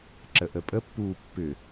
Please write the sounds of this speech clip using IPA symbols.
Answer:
ǁ ə ʔ ə pʼ ə pː uː pː ʏ

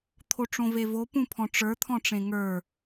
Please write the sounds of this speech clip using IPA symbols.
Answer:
t̪ʰ o ʈ͡ʂ õ v e v o p ũ pʰ ɔ̃ ʈ͡ʂ ə˞ t̪ʰ ɔ̃ ʈ͡ʂ ẽ ŋ ə˞

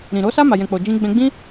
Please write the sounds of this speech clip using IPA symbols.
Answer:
ɾ ĩ˨ ɾ o˨˦ s a˦ m a˧ j ɛ̃˧ k͡p o˧ d͡ʒ ĩ˧ ɡ͡b ɛ̃˧ ɡ͡b ĩ˦

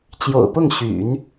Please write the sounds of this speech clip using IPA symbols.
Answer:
t͡ɕ j o̰˨˩ ʊ̯ p ʊ˥˩ ŋ ɕ y̰˨˩˦ n

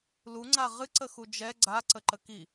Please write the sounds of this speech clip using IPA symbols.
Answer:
l u ŋ͡ǀ a ʁ ɨ ǀ ə x u d͡ʒ ɛ ɡ͡ǀ a ǀ ə ǃ ə k i

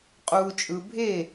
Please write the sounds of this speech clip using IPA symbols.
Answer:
qʼ uː˨ t͡ʃʼ ɯ˨ bʱ e˦˨

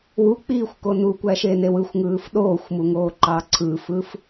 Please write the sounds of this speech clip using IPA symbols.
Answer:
w u k͡p iː xʷ k o n u kʷ æ ʃ e n e w ɯ xʷ ŋ ɯː f ɗ oː xʷ m u ŋ oː ǃ ɑː ǀʰ ɯ f ɯ f

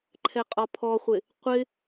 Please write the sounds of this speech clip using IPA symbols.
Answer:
ǃʰ ɛ qʼ ɒ pʰ ɔ χʷ ɪ | qʷ ɪ

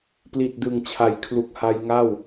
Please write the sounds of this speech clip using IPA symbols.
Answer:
p l i˨˩ t̚ d ɯ˨˩ ŋ t͡ɕʰ a˩˦ j kʰ l u˨˩ k̚ h a˧ j ŋ a˥˩ w

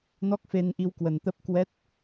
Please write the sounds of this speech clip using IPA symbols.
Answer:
n ɔ˦˥ k̚ f e˧ n ʔ i˧ w k w ə˨˩ n t̪ ə˦˥ p̚ k w ɛ˦˥ t̚

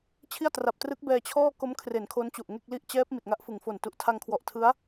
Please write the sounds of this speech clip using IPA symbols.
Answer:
t͡ɕʰ i˥˩ a̯ t r a˨˩ p̚ t r ɯ˦˥ k̚ b ɛː˧ t͡ɕʰ ɔː˥˩ k o˦˥ m kʰ r e˩˦ n kʰ o˦˥ n t͡ɕ u˨˩ ʔ ŋ e˥˩ k̚ l i˥˩ ʔ t͡ɕ ɛː˦˥ p̚ m i˨˩ t̚ ŋ a˦˥ ʔ f ɯ˩˦ ŋ f o˨˩ n t u˨˩ ʔ tʰ a˧ ŋ kʰ w ɔ˨˩ ʔ tʰ ɯ˦˥ a̯

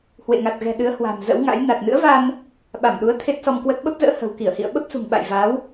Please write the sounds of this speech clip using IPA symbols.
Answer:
h w ḛ˧˨ ŋ a˨˩ t̚ ɣ ɛ̤˨˩ ɗ ɨ˨˦ ə̯ h w a̤˨˩ m z ə̰˧˥ w ŋ a̰˧˥ j n a˨˩ t̚ n ɨ̰˧˥ ə̯ v a˧ n | ɓ a˧˩ m ɗ u˨˦ ə̯ t̪ʰ e˦˥ t̚ s ɔ˧ m k w ə˦˥ t̚ ɓ ə˦˥ p̚ z ə̰ː˧˥ h ə̤˨˩ w k i˧˩ ə̯ h ḭ˧˨ ə̯ ɓ ə˦˥ p̚ s ṳ˨˩ ŋ ɓ a̰˧˨ j v a˨˦ w

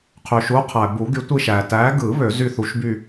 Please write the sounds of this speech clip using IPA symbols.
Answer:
qʰ y˩ ʃ u˨˦ qʰ æ˩ b u˨˩˦ ɡ y˨˦ tʷ i˦˨ ʃ æ˩ t æ˨˦ ɡ ɯ˨˩˦ β ø˨˩˦ z y˦˨ θ u˨˦ ʃ b y˦˨

